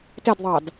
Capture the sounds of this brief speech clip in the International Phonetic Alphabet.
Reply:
t ɛ d ðˤ ɑ d

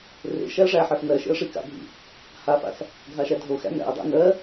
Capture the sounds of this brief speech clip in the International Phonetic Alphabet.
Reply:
r ḛ ʃ æ ə̯ ʐ æ ħ ɜ f n ɜ ʃ ḛ ə̯ ʂ i k a̰ bʱ ḭ | h a f a̰ s | ɡʱ a ʃ æ dʱ o x æ̰ n æ̰ ə̯ dˤ æ̰ n ɜ

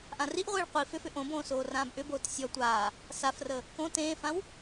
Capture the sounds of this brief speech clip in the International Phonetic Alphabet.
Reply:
ʔ ã r i ʔ ʁʷ iː ɭ qʷ i f ʏ f ʏ ʔ õ b õː s oː r ãː b ʔ ʏ b oː t sʲ ɔ tʷ aː | s a f r ə | k õ t ẽː f ã w

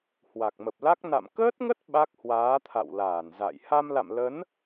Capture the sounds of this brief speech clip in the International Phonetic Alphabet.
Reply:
h w a˨˩ k̚ m ə˨˩ p̚ l a˦˥ k̚ n a̰˧˨ m k əː˦˥ t̚ ŋ ə˦˥ t̚ ɓ a˦˥ k̚ h w aː˨˦ t̪ʰ a̰˧˨ w l aː˧˩ n z a̰˧˨ j h a˧ m l a̰˧˨ m l ə˨˦ n

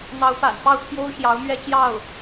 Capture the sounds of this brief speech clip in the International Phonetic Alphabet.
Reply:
n̪ ɑ˧˥ ʊ̯ p a̰˨˩ n p ɑ˥˩ ʊ̯ t̪ʰ j o˥ ʊ̯ ɕ j ɑ˧˥ ʊ̯ m ɥ ɛ˥˧ t͡ɕ j ɑ˥˩ ʊ̯

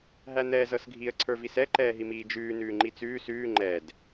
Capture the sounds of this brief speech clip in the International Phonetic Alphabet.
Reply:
ɦ æ n̪ ɛː z ɤ s ɡʱ i ə̯ ǀʰ ə˞ v i s ɛ ǃ ɛː ɦ i m iː d͡ʒ ʉː n ʉː ŋ͡ǃ i t͡s ʉː s ʉː ŋ͡ǃ ɛ d

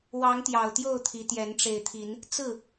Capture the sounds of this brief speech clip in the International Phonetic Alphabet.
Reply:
w ɑ˨˦ ŋ t̪ j ɑ˨˩ ʊ̯ t̪ j o˥˨ ʊ̯ t̪ʰ i˨˦ t̪ j ɛ˨˦ n ʈ͡ʂ e˨˩ ɪ̯ t̪ʰ i˨˦ n | t͡s ɹ̩˥˨

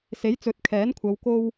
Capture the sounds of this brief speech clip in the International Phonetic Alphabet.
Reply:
s e˨˥ j t͡s ɵ˨˥ t̚ kʰ ɛː˨˥ n kʷʰ ɐ˨˧ w k o˥ w

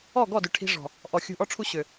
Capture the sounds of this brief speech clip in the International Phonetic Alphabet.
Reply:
ɔ˦˨ ɡ ɔ˦˨ d ʏ˨ ʈʰ i̤˧ ʐ ɔ̤˨ | ʔ ɔ˨ xʲ ṳ˧ ʔ ɔ˦ ʈ͡ʂʰ u˦ ɕ ʏ˨

